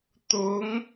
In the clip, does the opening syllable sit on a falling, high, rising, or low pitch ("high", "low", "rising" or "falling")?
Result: rising